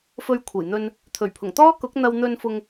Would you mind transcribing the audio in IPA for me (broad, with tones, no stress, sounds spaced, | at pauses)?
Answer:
f ɵ˧ ɥ kʷʰ ɐ˨˩ j n̪ ɵ˧ n | t̪ʰ ɵ˨˩ ɥ pʰ ʊ˨˩ ŋ t̪ ɔː˥ k ʊ˨˥ k̚ n̪ ɐ˧ w n̪ ɵ˧ n f ʊ˧ ŋ